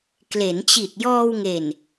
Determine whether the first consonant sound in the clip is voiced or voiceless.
voiceless